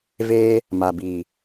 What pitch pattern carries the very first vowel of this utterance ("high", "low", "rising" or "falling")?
high